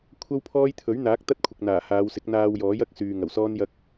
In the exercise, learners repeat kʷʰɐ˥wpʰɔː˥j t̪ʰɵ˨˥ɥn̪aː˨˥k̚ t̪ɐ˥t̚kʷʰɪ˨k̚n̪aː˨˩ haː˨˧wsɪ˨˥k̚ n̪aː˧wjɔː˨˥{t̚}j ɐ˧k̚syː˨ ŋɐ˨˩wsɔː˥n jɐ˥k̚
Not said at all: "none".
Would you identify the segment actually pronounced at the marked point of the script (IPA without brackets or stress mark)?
none